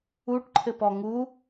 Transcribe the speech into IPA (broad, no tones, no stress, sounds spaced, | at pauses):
u ʈ ǃʰ ɘ p ɔ ŋ u